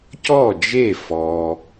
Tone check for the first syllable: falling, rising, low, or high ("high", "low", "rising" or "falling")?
falling